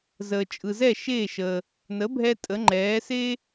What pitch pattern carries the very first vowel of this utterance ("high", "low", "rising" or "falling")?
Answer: low